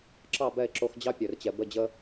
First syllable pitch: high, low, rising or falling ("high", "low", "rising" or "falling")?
falling